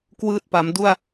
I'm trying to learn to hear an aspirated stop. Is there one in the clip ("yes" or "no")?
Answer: no